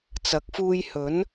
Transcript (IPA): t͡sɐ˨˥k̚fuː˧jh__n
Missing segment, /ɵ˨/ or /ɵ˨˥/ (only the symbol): ɵ˨˥